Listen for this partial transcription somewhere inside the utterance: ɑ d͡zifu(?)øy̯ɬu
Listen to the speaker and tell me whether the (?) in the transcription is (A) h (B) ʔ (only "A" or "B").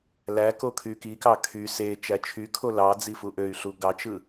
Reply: B